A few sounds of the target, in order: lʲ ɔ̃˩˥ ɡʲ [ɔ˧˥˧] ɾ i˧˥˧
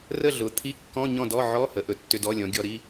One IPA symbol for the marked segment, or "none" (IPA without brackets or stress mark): ɔ˧˥˧